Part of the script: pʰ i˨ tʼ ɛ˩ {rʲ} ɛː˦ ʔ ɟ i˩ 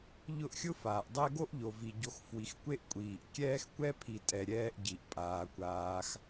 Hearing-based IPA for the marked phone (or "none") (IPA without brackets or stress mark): ɾʲ